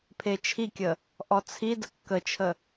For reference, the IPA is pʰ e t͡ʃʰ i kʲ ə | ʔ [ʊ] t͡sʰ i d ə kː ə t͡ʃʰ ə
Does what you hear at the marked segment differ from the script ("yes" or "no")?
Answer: yes